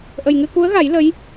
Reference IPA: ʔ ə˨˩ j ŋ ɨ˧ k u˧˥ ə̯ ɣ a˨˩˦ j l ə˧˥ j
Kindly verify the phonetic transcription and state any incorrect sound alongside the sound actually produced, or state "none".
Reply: none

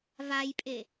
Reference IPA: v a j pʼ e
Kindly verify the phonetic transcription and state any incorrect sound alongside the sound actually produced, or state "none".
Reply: none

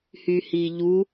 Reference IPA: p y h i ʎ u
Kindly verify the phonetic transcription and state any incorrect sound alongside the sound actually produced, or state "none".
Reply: p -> h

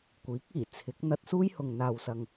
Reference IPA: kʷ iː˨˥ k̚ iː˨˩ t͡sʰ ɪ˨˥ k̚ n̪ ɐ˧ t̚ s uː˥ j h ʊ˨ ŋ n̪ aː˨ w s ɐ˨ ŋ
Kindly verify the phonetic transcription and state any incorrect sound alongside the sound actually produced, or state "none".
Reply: none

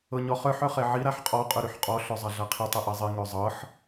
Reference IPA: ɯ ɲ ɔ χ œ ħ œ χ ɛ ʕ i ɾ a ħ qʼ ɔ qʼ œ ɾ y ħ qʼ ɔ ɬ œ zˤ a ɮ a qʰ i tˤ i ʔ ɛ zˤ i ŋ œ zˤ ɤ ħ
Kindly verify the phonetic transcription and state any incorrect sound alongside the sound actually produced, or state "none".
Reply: ɯ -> ɤ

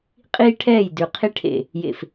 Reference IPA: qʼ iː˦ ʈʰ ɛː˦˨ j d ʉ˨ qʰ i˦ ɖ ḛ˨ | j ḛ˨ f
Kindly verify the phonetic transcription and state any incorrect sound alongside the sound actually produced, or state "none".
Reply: ɖ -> ʈʰ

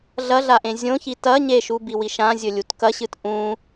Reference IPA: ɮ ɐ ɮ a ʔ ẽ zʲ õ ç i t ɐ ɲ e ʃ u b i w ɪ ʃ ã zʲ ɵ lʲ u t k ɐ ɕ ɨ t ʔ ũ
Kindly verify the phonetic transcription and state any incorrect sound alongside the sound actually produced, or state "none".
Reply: ɪ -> i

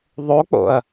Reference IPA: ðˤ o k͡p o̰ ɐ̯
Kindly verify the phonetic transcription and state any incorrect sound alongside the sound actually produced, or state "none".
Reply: none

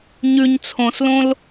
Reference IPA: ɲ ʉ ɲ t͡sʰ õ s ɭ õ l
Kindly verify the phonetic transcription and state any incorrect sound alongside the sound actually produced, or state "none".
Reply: ɭ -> l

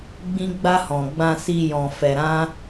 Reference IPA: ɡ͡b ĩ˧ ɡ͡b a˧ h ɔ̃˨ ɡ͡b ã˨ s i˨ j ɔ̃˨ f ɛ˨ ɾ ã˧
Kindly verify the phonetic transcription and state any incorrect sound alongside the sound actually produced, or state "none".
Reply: none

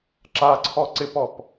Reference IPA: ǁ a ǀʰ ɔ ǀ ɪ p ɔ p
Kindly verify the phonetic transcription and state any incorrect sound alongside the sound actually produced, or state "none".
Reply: none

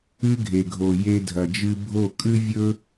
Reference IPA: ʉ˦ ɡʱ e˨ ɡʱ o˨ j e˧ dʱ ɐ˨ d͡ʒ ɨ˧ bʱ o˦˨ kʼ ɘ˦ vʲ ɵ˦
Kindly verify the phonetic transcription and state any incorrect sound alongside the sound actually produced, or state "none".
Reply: ɘ˦ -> ʉ˦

